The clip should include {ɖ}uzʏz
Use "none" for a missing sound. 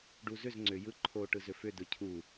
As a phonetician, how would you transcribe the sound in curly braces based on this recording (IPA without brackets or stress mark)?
ɖ